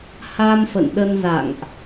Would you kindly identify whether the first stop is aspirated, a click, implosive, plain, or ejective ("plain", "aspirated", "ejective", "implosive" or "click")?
implosive